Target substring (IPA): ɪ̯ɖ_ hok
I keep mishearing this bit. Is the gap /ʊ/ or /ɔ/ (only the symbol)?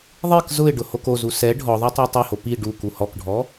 ʊ